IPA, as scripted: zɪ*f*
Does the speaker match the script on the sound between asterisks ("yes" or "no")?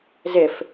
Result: yes